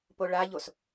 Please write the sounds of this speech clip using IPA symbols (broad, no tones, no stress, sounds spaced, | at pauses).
p o ɭ a ʎ o s